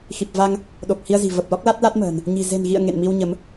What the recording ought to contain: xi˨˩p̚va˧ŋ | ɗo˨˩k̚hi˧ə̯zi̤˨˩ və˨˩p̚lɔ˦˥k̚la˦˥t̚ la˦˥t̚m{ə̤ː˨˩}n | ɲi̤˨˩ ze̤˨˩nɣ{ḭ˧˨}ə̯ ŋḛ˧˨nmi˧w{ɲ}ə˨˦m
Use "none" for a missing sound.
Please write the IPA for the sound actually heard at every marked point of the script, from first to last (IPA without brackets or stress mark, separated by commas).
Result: ə̤ː˨˩, ḭ˧˨, ɲ